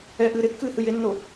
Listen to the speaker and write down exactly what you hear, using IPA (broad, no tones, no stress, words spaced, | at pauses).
ɛ ʔɨːɾekːɨː hɨjenːo